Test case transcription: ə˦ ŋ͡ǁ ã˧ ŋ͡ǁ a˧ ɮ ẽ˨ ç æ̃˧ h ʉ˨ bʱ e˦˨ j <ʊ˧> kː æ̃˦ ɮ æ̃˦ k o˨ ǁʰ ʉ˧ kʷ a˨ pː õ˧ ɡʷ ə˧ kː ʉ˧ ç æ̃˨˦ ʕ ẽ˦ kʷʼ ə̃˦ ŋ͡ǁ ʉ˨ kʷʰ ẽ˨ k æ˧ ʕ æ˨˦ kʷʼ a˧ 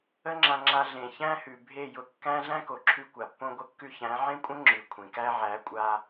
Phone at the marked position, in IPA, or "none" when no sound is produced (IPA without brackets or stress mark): ʊ˧